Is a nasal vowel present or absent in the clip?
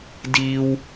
absent